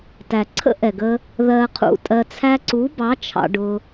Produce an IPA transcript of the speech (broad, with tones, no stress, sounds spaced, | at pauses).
t æ˨ ǀʰ ə̰˦ ʔ ɛ˨ ɡ ə˧ | ð ɜ˧ qʰ ṵ˧ tʼ ɜ˧ t͡sʰ æ˧ ǀ u˨˦ b ɑ˨˦ t͡ʃʰ ɑ̰˧ ɖ ʊ˧